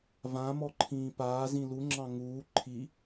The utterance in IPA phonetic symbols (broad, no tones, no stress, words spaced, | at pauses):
vãmɔǃʰĩː paːzĩ luŋ͡ǁɑ̃ ŋuː ǃʰi